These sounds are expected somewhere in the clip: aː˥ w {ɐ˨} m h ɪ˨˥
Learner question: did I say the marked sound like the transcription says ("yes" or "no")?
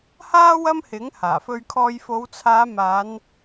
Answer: no